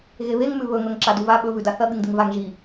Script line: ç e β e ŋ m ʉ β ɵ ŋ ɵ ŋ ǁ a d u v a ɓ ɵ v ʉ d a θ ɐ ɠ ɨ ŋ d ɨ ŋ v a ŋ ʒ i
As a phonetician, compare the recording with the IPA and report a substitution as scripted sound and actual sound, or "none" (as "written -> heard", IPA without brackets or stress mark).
ç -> ɣ